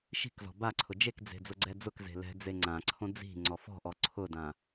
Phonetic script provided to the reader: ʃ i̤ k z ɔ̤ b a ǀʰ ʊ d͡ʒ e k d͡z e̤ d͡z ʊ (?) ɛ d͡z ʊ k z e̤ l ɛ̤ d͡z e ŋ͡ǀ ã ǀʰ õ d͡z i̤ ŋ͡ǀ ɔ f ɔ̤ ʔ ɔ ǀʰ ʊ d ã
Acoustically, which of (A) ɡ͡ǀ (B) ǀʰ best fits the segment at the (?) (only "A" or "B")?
A